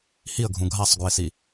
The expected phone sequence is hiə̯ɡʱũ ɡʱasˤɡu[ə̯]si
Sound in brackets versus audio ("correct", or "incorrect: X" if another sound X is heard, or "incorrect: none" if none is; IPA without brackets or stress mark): incorrect: ɪ̯